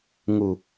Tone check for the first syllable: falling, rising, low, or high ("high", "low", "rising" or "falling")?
low